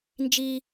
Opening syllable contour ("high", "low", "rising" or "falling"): high